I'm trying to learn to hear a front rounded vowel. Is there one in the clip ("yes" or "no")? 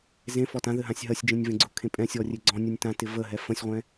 no